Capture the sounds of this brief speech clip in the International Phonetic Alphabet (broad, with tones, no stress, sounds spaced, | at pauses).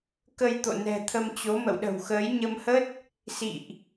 k ə˧ j t̪ o̰˧˨ n ɛ̤˨˩ t̪ʰ ə˧ m t͡ɕ o˨˦ m ə̰˧˨ w ɗ ə̤˨˩ w x əː˨˦ j ɲ ə˧ m h ə˦˥ t̚ | s ḭ˧˨ ʔ